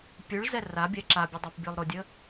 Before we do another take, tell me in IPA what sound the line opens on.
pʲ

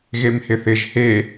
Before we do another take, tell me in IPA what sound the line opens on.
ɣ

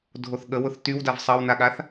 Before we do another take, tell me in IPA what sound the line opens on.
dʱ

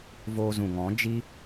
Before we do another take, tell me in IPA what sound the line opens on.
v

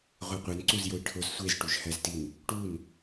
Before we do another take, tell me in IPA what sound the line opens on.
ʁʷ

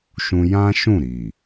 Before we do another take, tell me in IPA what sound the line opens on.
ʃ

